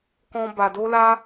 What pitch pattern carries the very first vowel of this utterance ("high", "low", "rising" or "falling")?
high